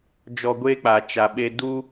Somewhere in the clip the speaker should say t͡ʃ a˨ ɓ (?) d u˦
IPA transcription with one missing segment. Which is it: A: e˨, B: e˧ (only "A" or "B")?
B